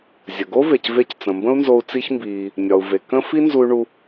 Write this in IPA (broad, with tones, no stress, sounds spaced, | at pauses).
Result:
zʲ ə˩ ɡ o˥ v e˩ c v e˧ c t͡s ə̃˩ m b ə̃˥ u̯ n z o˧ u̯ t͡s i˧ ç m b iː˩ | nʲ ɒ˩ u̯ v e˩ k ə̃˥ f i˥ n z u˧ y̯ ɳ u˧